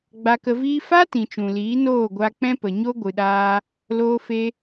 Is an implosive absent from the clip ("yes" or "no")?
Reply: no